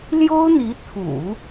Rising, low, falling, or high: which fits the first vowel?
high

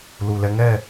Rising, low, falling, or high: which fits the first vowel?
low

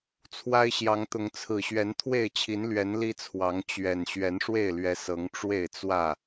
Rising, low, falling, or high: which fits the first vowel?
high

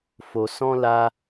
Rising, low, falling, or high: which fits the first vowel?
low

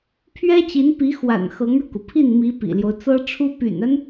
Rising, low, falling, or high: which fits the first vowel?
high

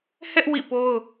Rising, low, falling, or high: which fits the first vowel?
high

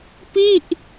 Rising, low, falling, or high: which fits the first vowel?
falling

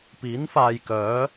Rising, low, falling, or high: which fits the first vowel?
rising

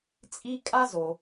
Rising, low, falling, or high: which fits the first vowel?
high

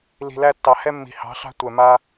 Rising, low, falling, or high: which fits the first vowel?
low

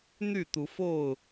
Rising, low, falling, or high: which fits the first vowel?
falling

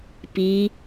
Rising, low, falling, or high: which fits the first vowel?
rising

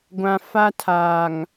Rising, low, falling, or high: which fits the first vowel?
low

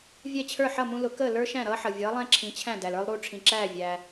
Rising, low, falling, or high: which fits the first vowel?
falling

